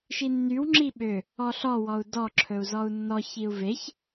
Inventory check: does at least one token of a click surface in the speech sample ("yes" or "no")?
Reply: yes